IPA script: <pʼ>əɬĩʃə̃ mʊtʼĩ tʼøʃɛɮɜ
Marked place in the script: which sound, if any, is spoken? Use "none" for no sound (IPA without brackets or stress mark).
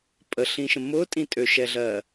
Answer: pʼ